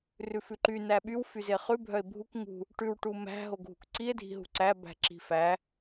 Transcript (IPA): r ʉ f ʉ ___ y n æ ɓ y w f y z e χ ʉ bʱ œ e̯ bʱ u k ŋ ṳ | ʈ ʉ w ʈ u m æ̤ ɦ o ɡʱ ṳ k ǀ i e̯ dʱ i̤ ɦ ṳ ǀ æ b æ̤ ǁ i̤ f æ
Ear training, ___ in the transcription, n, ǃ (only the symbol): ǃ